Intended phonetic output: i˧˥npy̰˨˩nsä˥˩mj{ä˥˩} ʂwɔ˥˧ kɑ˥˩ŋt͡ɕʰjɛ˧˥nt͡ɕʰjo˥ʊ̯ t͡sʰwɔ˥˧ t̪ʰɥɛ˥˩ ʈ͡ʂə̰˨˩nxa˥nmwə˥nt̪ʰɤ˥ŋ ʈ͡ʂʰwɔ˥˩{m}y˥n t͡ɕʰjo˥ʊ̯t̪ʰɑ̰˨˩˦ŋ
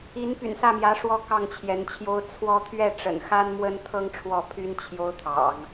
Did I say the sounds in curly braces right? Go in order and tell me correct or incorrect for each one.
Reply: incorrect, incorrect

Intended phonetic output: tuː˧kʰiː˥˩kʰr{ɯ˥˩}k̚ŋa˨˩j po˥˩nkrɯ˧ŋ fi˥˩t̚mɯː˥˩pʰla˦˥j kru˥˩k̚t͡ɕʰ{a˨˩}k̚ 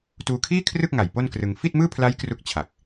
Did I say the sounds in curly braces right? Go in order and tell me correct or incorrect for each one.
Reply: correct, correct

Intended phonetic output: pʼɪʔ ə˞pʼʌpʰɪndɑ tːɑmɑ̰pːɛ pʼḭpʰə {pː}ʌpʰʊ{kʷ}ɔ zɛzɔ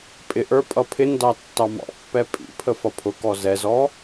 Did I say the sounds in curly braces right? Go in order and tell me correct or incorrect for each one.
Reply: incorrect, incorrect

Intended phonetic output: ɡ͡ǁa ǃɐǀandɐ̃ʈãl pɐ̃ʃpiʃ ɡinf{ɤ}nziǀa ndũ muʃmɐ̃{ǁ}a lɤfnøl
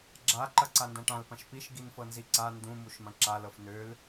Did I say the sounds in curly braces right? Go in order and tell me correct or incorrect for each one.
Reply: correct, correct

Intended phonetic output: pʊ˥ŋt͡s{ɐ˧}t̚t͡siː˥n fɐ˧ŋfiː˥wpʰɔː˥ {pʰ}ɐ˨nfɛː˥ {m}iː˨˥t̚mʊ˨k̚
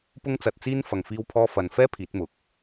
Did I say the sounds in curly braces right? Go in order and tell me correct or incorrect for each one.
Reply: correct, incorrect, incorrect

